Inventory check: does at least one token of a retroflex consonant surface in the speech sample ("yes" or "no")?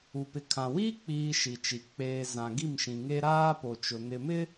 no